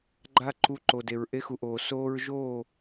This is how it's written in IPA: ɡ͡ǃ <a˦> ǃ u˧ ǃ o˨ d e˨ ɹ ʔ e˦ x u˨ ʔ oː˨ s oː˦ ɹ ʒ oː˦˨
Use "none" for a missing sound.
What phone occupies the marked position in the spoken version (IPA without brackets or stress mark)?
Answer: a˦